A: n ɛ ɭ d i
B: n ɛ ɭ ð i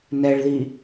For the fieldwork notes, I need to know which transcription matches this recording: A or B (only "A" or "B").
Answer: B